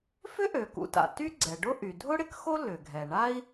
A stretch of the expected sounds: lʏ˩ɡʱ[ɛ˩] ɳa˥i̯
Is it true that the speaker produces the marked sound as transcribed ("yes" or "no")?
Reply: yes